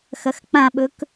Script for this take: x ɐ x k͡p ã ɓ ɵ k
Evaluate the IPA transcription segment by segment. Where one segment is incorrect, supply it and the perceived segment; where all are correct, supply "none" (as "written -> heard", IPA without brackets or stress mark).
none